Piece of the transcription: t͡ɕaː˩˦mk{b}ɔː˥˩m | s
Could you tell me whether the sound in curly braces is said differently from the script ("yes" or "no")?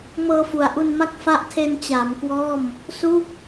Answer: yes